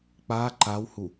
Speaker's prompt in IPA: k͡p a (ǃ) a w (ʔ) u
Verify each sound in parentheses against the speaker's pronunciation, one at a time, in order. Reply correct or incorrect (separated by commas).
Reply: correct, incorrect